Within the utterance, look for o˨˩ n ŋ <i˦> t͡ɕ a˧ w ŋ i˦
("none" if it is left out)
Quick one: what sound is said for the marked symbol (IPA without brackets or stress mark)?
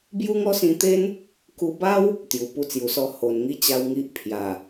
i˦